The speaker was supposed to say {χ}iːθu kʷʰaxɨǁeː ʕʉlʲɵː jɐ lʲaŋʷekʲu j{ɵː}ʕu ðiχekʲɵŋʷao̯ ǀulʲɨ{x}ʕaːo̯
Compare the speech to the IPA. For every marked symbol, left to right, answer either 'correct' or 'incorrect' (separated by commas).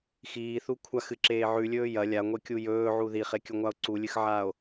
incorrect, correct, correct